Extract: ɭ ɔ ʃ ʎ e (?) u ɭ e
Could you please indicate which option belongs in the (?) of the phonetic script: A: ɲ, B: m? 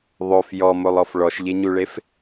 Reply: A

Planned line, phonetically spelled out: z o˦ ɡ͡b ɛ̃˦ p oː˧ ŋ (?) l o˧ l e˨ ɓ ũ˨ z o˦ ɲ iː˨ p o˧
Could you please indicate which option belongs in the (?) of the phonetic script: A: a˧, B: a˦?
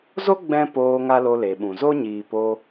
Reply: B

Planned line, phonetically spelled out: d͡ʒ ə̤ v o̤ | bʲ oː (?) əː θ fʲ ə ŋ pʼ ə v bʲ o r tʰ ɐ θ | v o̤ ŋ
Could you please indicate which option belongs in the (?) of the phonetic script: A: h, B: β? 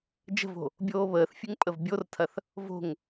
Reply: B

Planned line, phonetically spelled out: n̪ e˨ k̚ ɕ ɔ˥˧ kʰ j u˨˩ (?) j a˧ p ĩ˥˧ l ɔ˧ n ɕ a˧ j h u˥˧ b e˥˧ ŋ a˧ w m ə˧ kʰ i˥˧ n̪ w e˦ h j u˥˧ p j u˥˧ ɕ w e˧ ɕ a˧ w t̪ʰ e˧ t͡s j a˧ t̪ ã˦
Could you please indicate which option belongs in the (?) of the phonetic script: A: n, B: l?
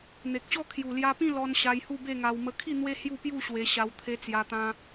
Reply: B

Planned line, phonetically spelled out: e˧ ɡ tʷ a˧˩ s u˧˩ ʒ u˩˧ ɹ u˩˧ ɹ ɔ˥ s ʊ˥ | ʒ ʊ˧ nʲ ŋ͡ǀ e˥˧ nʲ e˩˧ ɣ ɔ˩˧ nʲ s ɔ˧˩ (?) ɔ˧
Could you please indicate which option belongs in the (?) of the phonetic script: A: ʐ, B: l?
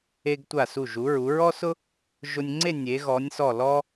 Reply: B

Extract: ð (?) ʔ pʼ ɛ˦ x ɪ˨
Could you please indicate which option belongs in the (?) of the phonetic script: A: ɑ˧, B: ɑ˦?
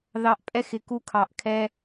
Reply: A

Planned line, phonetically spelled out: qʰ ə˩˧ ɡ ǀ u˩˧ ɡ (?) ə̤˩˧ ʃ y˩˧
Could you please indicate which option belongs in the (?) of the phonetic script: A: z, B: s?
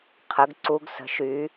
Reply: B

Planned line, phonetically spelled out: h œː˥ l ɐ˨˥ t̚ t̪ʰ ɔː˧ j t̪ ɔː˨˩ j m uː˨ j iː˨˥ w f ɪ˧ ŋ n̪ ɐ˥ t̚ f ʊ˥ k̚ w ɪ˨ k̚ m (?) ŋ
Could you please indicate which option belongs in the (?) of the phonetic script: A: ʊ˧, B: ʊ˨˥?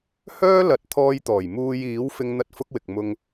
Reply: A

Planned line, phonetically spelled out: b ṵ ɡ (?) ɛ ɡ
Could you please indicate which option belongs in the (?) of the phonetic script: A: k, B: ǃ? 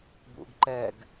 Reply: B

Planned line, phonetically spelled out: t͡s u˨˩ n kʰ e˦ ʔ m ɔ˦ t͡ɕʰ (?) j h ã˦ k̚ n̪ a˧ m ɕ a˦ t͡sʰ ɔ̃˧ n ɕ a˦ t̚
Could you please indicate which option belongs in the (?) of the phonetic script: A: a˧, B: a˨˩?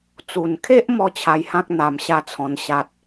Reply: A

